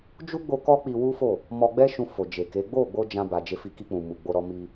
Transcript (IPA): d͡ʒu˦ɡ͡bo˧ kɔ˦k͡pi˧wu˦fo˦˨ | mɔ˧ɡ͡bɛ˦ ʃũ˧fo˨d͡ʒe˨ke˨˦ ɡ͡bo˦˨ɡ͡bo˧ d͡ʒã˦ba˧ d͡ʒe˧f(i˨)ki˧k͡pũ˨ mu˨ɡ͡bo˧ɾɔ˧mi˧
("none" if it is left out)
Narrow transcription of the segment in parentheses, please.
i˧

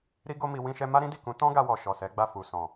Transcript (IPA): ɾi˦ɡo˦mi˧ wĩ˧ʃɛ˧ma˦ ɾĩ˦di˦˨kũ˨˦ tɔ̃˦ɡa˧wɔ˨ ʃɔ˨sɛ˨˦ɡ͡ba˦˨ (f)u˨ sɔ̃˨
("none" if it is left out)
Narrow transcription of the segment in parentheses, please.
f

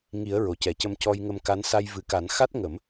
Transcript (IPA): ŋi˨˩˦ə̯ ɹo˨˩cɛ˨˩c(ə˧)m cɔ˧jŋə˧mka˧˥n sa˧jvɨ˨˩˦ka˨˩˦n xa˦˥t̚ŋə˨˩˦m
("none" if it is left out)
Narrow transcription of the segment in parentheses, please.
ə˧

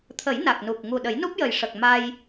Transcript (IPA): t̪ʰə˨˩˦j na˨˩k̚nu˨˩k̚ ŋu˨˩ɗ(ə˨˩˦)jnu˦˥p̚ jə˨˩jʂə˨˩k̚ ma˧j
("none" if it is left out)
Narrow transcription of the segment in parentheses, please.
ə˨˩˦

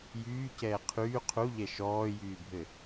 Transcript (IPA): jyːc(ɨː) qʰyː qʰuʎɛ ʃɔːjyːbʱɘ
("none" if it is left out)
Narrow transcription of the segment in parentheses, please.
ɛː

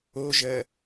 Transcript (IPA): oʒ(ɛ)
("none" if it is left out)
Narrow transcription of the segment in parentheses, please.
ɜ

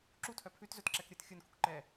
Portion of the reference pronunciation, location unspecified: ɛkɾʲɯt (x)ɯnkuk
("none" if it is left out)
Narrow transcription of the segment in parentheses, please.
xʲ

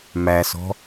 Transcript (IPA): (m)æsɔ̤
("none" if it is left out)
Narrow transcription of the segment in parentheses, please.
m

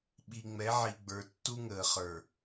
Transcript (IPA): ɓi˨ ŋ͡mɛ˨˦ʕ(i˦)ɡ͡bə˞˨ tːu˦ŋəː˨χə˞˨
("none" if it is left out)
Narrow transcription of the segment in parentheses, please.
i˨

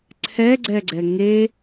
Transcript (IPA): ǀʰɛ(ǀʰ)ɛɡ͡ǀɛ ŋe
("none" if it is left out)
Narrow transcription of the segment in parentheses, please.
ɡ͡ǀ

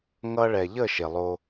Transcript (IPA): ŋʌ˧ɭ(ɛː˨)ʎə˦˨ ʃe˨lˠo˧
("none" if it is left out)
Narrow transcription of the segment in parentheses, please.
ɛ˨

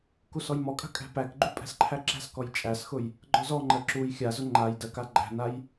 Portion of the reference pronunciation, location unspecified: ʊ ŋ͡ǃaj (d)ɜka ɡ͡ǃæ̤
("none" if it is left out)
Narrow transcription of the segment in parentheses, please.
d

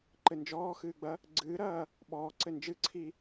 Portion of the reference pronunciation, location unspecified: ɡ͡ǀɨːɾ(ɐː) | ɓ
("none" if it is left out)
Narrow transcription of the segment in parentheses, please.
ɐː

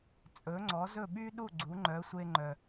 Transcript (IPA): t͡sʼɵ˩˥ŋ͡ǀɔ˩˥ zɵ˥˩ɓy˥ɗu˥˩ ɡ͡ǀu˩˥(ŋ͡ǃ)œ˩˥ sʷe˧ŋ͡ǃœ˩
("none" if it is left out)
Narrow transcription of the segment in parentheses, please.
ŋ͡ǃ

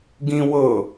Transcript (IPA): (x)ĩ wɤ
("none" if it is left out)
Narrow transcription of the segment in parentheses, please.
ɡ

